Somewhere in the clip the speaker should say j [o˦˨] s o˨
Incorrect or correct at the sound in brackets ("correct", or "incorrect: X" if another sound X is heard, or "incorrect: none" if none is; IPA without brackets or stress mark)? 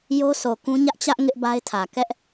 incorrect: o˦